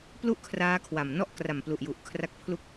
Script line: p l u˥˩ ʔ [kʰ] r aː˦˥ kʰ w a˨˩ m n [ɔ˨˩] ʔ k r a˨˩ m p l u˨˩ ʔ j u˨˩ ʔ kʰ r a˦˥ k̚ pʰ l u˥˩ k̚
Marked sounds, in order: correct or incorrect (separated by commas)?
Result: correct, incorrect